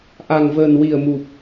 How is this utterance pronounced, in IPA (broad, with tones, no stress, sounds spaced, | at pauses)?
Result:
ʔ a˨˩ ŋ v əː˨˩ n w i˨˩ ə̯ m u˨˩ p̚